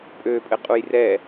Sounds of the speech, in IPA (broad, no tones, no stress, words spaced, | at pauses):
pʼøpʼɘqʼuj rɛ